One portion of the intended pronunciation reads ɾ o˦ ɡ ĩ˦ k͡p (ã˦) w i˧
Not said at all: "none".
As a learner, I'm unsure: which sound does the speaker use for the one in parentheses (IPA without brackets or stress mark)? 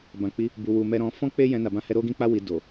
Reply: a˦